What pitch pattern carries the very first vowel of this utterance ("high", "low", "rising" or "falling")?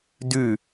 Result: falling